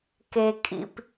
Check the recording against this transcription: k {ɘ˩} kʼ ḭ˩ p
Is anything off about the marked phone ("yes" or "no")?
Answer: yes